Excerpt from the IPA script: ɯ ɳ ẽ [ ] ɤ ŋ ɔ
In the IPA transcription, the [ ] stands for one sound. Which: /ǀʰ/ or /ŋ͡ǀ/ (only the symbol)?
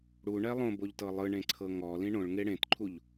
ǀʰ